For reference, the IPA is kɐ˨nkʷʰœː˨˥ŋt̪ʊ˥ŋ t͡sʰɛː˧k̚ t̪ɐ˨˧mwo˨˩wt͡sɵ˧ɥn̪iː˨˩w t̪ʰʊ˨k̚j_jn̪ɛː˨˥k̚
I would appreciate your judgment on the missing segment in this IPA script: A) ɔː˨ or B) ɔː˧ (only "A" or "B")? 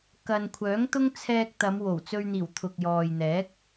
A